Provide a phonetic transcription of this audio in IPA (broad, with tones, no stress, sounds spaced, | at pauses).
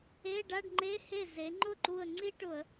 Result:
e˧˥˧ ɖ a˧˥˧ ɖ ŋ͡ǃ e˧˥˧ h e˥˩ z e˩˧ ŋ͡ǃ ʊ˥˩ ǃ u˧˩ ə̯ ŋ͡ǀ i˥ ʈ ʊ˧˩˧ ə̯